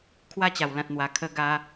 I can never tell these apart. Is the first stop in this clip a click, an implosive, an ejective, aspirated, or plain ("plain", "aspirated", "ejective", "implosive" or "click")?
aspirated